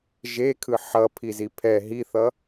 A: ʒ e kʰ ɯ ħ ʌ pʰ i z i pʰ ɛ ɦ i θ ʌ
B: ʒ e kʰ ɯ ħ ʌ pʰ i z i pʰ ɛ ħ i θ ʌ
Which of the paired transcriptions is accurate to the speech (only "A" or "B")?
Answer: A